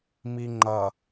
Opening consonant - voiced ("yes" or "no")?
yes